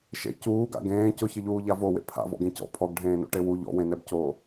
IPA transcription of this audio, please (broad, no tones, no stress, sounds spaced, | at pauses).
ʃ ḛ c uː ɡ a̰ ɡ ẽː c ʊ ç ɪ ʎ uː ʎ a v o w ḛ pʰ a̰ v ɔ̰ ɡ ẽ c ɔ̰ pʰ ɔ ɡ ɖʱ ẽː n o̰ ʈ e w u ʎ ɔ̰ w ẽ n ɛ b c oː